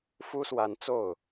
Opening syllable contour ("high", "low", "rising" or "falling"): high